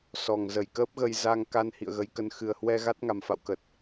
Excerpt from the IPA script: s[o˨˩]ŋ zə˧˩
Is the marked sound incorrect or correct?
incorrect